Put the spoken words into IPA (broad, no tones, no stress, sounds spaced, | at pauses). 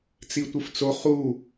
t͡s i tʷ ɨ f t͡s o χ u